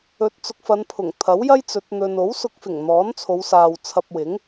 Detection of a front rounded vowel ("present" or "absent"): absent